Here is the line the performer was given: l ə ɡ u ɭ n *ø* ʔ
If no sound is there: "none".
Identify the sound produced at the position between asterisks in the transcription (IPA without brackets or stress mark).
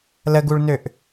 ø